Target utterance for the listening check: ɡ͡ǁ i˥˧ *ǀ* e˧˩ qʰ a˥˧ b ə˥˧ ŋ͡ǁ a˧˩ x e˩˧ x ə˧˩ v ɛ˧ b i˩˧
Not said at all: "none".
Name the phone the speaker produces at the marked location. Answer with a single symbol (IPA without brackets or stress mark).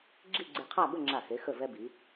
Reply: ɡ͡ǀ